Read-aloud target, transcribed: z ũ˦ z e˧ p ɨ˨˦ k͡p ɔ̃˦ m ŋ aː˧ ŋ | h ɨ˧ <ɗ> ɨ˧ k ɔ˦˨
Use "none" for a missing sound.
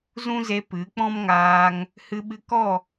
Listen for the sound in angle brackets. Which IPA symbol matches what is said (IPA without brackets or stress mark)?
ɓ